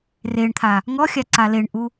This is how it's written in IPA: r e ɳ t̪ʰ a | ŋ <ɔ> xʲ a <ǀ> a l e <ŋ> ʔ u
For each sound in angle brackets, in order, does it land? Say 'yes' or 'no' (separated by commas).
yes, yes, no